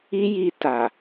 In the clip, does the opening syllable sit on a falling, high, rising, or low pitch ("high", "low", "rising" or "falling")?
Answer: high